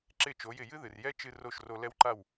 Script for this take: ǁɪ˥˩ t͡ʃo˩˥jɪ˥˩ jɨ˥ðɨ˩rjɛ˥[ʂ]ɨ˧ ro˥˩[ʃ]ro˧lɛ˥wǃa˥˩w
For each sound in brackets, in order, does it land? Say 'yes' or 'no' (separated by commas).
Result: no, yes